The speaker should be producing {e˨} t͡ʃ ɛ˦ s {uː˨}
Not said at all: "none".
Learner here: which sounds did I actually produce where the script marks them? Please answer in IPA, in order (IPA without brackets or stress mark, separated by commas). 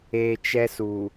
e˨, u˨